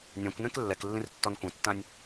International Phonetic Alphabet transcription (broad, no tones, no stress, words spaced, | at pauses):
nʲãkʷnẽk lːɛklːĩrtːɔn kʷẽtːãnʲ